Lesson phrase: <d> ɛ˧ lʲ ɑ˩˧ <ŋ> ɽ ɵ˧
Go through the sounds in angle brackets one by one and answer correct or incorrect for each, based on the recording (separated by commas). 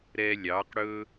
incorrect, incorrect